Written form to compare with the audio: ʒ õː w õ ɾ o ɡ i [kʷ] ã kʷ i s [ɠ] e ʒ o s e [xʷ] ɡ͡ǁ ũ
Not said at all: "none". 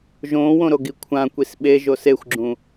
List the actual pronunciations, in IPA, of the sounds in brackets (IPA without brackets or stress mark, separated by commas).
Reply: kʷʰ, ɓ, xʷ